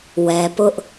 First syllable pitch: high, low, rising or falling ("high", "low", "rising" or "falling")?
low